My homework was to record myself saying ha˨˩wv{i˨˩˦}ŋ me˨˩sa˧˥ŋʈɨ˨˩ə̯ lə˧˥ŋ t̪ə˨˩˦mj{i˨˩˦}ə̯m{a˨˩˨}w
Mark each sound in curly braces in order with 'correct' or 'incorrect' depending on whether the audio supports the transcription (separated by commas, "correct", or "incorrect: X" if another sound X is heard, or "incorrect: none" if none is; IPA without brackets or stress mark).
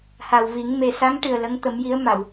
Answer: correct, incorrect: i˧˥, correct